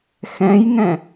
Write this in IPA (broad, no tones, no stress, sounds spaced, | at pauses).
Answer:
x ɛ̃ j ŋ ɛ̃